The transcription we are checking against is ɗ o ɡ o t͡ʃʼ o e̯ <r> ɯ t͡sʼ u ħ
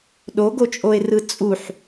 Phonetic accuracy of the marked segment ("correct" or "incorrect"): correct